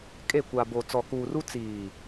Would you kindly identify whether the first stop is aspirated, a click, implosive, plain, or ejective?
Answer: ejective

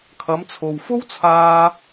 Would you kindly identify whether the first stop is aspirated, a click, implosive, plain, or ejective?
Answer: aspirated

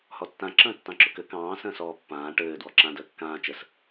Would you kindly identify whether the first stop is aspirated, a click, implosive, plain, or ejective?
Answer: plain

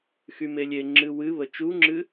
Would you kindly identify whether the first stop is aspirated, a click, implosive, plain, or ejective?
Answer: click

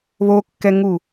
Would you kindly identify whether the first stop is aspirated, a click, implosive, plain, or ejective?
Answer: plain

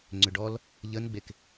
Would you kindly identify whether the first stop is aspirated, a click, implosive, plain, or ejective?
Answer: click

